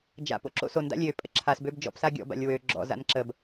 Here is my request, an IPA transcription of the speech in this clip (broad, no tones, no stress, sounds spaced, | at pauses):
d͡ʒ a̰ p o̰ ǁ o̰ s o n d a̰ lʲ ø pʼ ə̰ ǁʰ a s b ø b d͡ʒ ɔ̰ p s a ɡʲ ɔ̰ b a̰ lʲ w ø ɡ͡ǁ ɔ̰ z a̰ n ǁ ə b